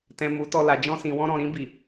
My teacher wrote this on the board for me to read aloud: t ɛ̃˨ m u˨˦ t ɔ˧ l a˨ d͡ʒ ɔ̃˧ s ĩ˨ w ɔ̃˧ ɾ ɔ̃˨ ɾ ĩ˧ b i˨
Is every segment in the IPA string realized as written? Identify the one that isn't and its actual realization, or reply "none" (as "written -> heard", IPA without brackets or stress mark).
none